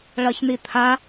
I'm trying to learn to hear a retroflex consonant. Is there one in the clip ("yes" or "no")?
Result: yes